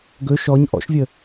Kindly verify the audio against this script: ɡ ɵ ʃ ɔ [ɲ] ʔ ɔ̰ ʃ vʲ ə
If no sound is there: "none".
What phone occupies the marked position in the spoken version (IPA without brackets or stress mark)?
ɲ